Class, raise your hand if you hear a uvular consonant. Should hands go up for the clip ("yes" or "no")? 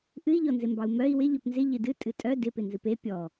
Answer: no